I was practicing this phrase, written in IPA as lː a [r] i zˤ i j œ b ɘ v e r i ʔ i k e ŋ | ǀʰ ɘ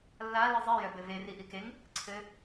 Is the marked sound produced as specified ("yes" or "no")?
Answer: no